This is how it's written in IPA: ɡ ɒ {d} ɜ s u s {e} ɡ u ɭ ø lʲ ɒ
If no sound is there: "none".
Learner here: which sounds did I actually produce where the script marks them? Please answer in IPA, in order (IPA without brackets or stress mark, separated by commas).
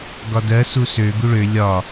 d, ø